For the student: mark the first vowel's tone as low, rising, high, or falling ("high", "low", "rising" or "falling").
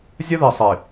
high